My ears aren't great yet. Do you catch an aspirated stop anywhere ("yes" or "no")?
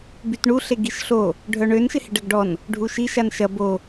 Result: no